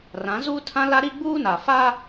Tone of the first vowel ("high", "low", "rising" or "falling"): rising